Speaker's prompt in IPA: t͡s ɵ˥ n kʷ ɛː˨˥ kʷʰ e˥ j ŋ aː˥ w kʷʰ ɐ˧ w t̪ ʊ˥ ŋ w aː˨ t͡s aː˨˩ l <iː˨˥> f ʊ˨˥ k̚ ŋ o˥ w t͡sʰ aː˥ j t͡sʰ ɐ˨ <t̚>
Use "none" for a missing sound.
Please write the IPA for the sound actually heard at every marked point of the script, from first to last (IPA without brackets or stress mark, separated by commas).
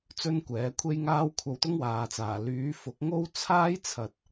yː˨˥, t̚